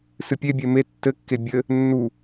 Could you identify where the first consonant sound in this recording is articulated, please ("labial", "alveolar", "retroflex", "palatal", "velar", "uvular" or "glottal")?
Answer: alveolar